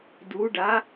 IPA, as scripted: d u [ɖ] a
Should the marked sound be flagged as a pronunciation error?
no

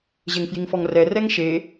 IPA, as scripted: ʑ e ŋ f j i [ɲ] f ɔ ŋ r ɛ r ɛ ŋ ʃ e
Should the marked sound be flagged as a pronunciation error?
yes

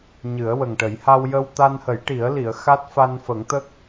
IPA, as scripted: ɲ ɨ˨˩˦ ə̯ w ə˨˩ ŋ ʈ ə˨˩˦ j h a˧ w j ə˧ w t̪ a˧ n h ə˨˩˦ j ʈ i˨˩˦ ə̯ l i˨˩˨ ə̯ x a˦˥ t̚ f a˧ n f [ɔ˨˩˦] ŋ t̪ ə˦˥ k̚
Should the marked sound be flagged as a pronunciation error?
yes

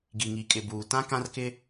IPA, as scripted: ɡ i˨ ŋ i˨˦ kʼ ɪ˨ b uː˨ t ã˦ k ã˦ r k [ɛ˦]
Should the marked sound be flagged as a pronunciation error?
yes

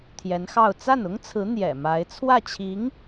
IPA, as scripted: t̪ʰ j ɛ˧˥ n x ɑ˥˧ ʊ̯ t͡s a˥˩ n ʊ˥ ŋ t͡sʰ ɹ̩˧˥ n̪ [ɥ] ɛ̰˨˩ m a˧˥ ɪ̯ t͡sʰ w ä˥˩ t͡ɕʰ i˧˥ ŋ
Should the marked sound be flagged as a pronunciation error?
yes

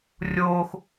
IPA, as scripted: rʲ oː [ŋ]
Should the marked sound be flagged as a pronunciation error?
yes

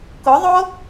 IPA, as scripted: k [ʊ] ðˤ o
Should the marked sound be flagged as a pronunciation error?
no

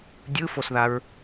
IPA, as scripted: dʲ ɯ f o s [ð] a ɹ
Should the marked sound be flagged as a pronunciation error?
no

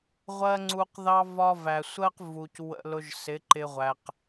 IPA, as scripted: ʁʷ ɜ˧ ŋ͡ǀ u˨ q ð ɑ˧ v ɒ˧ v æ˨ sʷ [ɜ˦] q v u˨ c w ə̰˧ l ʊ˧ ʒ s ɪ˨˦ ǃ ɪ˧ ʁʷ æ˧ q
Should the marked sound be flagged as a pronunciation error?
no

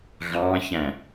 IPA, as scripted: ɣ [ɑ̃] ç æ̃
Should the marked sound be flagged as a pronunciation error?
no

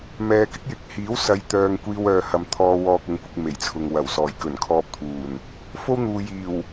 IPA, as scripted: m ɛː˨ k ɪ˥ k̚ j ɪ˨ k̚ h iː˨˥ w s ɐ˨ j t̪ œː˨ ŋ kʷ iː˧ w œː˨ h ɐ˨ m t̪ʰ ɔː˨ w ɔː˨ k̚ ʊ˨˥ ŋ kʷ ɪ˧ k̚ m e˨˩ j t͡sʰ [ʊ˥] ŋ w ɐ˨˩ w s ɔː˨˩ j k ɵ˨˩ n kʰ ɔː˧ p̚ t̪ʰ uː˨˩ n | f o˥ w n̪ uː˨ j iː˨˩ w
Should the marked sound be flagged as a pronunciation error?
yes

